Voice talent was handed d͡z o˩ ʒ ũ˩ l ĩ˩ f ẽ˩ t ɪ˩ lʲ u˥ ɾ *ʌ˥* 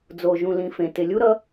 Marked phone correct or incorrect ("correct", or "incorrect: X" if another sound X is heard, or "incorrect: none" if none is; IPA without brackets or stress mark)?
correct